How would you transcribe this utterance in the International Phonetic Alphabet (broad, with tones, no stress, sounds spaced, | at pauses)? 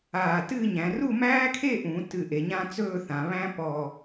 aː˧˩ t ɨː˥˧ ɲ æ̃˩˧ r u˥˧ m æː˥ kʰ e˥˧ ʔ ũ˩˧ t ɨ˧˩ ʔ e˩˧ ɲ ã˥ t͡s ɵː˥˧ θ ã˩˧ β æ̃˥ p ɔ˧˩